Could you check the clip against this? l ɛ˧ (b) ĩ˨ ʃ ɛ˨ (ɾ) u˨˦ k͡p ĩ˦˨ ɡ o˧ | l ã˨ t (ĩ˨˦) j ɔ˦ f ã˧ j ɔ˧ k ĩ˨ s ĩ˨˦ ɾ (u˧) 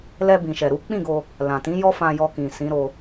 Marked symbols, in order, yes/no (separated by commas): yes, yes, yes, no